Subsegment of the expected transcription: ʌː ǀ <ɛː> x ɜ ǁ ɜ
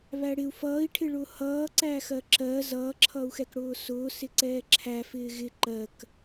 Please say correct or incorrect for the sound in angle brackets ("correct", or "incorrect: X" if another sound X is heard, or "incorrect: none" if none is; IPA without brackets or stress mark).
incorrect: æː